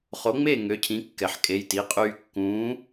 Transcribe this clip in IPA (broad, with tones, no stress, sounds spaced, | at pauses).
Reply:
χ o˨˥ ŋ͡m e˥˨ ŋ ø˨˥ cʰ ĩ˨˥ kː ɛ˩ ħ kʼ e˩˧˩ j t i˩˧˩ qʼ yː˧ kː ũː˨˥